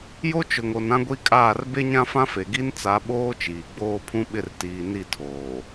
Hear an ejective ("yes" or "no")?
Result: yes